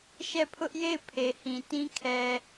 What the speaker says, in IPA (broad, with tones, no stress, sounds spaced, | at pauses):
ʃ ɛ˦˨ pʰ ʊ˦ ʔ j e˦˨ ɪ̯ pʰ e˨ h ĩ˨ t ĩ˦ kʰ ɛ˨